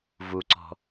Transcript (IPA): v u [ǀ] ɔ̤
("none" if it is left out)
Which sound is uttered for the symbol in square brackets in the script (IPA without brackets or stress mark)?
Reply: ǀ